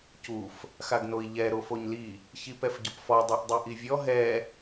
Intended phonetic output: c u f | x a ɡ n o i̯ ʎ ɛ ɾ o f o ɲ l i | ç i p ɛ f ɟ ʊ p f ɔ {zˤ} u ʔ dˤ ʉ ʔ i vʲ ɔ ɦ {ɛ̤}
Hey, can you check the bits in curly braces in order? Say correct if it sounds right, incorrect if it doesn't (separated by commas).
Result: incorrect, incorrect